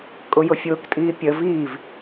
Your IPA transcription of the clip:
kʼ ʊ j ʊ fʲ ʊː k tʼ iː pʲ ə v iː v

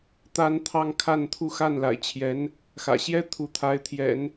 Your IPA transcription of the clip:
t̪ a˥ n t̪ʰ ɑ˥ ŋ kʰ a˥˧ n t̪ʰ u˥˧ x a˥˩ n l a̰˨˩ ɪ̯ t͡ɕʰ j ɛ˧˥ n | x ä̰˨˩ ɕ j ɛ˥ t̪ʰ u˧˥ t̪ʰ a˧˥ ɪ̯ t̪ʰ j ɛ̰˨˩˦ n

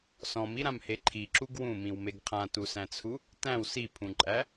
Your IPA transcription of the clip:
s ɔ̃ m i ɾ ã m h e ǃʰ i ǁ u ɡ w ũ m ĩ w m e ɡ qʰ ã t u s æ̃ t͡sʰ u | t æ̃ w s i pʰ ũ ǃʼ æ

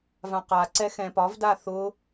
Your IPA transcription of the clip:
v ã q a ǀ ɛ x ɛ̃ p ɒ v d a θ ʊ

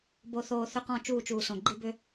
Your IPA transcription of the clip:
b o˨ θ oː˨ θ ʏ˦ q ɔ̃˦˨ t͡ʃ uː˦˨ t͡ʃ uː˨ s õ˨ ɡ͡ǃ i˦ b ʏ˦

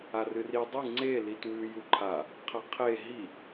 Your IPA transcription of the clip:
a r ɨ r i dˤ ɨ ŋ͡ǀ e l i t w ʉ j u ǃʰ a | qʰ ɐ qʰ e ɦ i

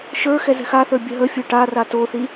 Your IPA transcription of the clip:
ʃ ə˞ x ɛ z ɛ̤ x a θ ə˞ bʲ ə ɦ ə fʲ ə˞ ʈ a r a t o θ i

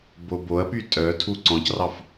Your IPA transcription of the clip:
b o b o ɐ̯ p y tʼ œ tʰ u ǀ ɔ̃ c r ɑ f

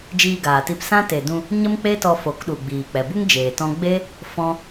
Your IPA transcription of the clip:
d͡ʒ iː˧ ɡ aː˨ t i˧ p s ã˦ t e˨ d ũ˧ | ɲ ə˦ m k͡p e˦ t ɔ˧ f o˨˦ k ɗ u˨ ɡ͡b iː˨ k͡p ɛ˨ b u˦ ŋ d͡ʒ eː˨ t ɔ̃˦ ɡ͡b e˦ | f ɔ̃˦

